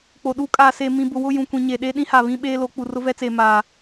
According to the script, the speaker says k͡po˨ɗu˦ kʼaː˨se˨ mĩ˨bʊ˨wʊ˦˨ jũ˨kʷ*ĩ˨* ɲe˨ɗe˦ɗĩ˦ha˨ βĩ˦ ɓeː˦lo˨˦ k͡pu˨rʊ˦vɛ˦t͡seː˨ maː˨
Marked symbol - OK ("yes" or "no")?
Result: yes